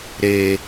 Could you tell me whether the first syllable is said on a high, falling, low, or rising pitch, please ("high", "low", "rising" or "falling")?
low